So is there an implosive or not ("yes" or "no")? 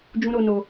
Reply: no